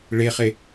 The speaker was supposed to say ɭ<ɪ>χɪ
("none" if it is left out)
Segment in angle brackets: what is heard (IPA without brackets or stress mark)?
ɪ